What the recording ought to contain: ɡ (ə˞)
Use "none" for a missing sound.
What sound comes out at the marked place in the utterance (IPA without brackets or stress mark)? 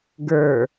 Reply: ə˞